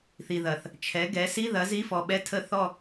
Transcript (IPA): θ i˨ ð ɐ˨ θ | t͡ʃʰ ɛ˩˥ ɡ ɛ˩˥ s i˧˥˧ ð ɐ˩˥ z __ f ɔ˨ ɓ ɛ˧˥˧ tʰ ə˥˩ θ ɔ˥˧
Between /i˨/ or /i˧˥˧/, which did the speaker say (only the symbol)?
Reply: i˧˥˧